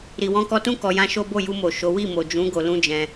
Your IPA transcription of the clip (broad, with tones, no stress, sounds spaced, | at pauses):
ɾ i˨ w ɔ̃˧ k ɔ˧ t ũ˦ k ɔ˧ j ã˦ ʃ o˦ b o˦˨ j u˧ m o˨ ʃ o˨˦ w i˦˨ m o˨ d͡ʒ ũ˨˦ ɡ o˧ l ũ˦ d͡ʒ ɛ̃˧